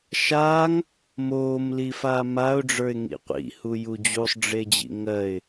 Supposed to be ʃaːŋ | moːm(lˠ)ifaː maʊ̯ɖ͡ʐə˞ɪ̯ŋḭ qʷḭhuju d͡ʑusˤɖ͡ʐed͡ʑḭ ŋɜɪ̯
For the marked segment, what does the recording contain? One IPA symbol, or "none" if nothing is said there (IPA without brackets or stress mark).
l